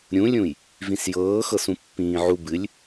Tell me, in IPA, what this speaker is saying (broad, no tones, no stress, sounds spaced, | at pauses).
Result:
ɾʲ ũ lʲ ũ j | v ĩ s j ɤː x ɤ s ũ pː ĩː ʕ u b ɨ lʲ